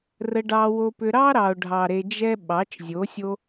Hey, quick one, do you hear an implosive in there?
yes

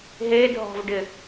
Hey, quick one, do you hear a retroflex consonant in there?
yes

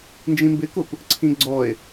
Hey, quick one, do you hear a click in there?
yes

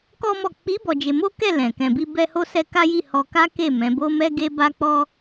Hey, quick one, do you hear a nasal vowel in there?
yes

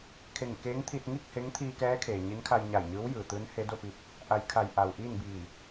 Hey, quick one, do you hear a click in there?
no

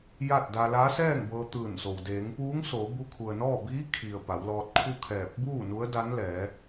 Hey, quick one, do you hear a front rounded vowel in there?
no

